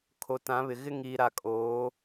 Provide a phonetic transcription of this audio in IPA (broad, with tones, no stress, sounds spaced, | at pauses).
kʰ o˨ t ã˨˦ β ɪ˨ ɣ ɪ˦ ŋ iː˨ ɾ a˨ kʼ oː˨˦